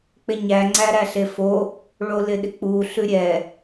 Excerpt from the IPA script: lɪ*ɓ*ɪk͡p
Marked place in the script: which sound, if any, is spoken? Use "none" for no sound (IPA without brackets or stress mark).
ɗ